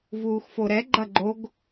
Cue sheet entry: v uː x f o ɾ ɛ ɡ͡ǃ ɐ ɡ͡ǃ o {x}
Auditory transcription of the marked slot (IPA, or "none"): ɡ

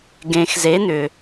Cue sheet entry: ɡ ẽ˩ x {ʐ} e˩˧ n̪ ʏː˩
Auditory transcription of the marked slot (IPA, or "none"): z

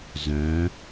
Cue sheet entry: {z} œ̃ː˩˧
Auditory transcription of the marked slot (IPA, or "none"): z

